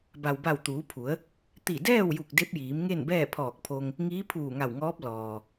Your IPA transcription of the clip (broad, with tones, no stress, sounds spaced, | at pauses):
b a˩ w b a˧˩ w t̪ uː˩˧ pʰ u˩˧ ə̯ | t̪ i˧˩ d ɛː˥˨ w j u˧˩ k̚ d e˧˥ p̚ j iː˩˧ m ŋ e˥˨ n b ɛː˥˨ pʰ ɔː˧˩ k̚ pʰ o˧ ŋ | ŋ iː˧˥ pʰ uː˧˩ ŋ a˧˩ w ŋ ɔː˧˥ p̚ l ɔː˩